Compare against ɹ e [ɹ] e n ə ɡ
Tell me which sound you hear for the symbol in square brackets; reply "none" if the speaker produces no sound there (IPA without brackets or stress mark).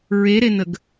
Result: ɾ